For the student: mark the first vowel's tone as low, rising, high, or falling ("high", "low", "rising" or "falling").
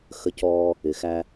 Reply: high